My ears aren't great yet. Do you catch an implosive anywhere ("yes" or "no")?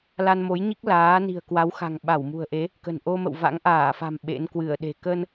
yes